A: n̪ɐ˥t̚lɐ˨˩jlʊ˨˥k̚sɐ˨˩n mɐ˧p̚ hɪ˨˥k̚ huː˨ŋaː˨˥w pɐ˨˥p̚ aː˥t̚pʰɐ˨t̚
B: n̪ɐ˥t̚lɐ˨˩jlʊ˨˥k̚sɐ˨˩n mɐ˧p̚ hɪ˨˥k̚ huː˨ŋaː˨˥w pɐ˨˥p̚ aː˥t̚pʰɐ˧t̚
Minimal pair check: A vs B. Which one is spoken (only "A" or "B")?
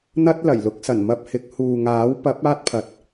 A